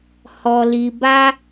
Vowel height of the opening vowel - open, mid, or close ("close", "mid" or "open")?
mid